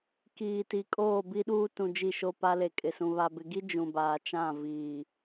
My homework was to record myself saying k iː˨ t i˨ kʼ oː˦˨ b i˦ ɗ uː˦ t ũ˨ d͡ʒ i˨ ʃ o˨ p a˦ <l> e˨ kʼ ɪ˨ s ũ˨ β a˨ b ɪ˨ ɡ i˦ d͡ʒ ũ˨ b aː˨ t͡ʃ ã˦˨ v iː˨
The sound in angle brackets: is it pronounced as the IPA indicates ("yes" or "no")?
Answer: yes